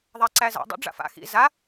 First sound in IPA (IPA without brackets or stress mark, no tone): ðˤ